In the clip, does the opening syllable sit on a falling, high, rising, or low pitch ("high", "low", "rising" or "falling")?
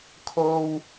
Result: high